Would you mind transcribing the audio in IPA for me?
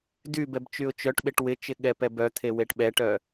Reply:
dybɛb t͡ʃyʊ̯t͡ʃœʈɓeʈ wɪt͡ʃɪ ɠɛpɛbœt̪ʰe weʈɓɛʈœ

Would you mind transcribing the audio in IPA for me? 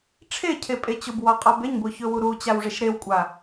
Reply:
ʈ͡ʂʰecʰepʼe t͡ɕʊbwɒqʼɒb eɲbʊçɵwu ɾut͡ɕawʐeʃ ɾewkʷʼa

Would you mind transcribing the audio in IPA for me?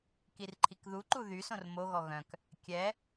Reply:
kirǃʰikðuǃu ðysõr moɣɔ ɣœ̃k | kʲɛ

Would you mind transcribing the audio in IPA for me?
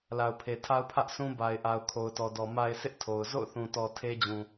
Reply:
la˨ʊ̯pʰe˨tʰa˦ʊ̯ pʰä˦ʔsʰũ˦ba˨ɪ̯ʔa˨ʊ̯ kʰo˨ʊ̯tɔ˨dɔ˨ ma˦ɪ̯ sʰɪ˦ʔ tʰo˨ʊ̯ zo̰˦˨ʊ̯θũ˨tɔ˨ tʰe˦d͡ʑũ˨

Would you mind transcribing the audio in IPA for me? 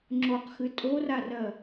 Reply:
ŋ͡ǁoqxɨ tʼorarɜ

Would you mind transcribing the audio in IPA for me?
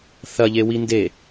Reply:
θɐʎewi nde

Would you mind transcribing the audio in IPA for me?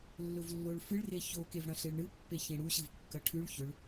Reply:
lːɵvlːoɭfɨɭ reço kevɽɐ̃ɬeɭɳɨ pːeçẽɽu ɕɨvkːɐʈʰʉɭ çɵɭ

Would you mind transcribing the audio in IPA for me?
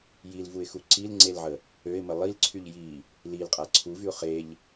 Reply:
jilvuɪ̯xu ǀilŋ͡ǀelʕə | øɪ̯mə lˠilǀʰyʎ ji | lilqʼa ǀʰuvyʊ̯ χeʎ

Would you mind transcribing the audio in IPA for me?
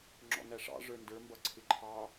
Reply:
ŋ͡ǁɔ̰næʂɑ̰ ʐə˞ndə˞ mbʌǀʰɪǃʰɑ

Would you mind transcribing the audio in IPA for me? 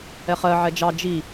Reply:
ɛχɜ ʕɛd͡ʒɑ d͡ʒi

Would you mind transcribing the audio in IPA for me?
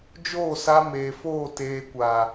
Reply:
d͡ʒoː˦˨sa˧ meː˨foː˦˨ teː˨kʷa˨

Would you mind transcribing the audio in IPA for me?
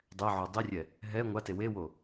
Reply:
dˤɛʕo dˤirʲɛ | ɦɛ ŋʷate wewo

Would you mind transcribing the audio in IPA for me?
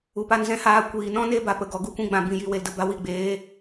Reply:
u˨pa˧nzɛ̃˦haː˧ kʷiː˨nɔ̃˦ ne˦ba˨pə˨ɡɔ˨ ɡu˧kʷĩ˧ɡ͡bã˨ bĩ˧ji˧we˧ldə˧ ba˧wi˦˨ɡ͡beː˨˦

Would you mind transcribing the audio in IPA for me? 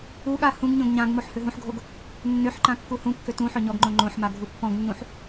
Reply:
uɠa hũɡ ɲõɡɲãɡmoħ høɦũħɡʱoɡ | nːøħǃã kːuhũkːø tũ ħøɲɔɡŋ͡ǃõ ŋ͡ǃõħma ɡʱupːɔ̃ɡnːũħ

